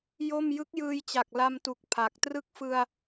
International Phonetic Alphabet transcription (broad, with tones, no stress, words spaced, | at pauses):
jo˥˩m jɯ˦˥k̚jɯː˧jt͡ɕa˨˩k̚ la˧mtu˨˩k̚ pʰa˨˩k̚ trɯ˦˥k̚fɯ˧a̯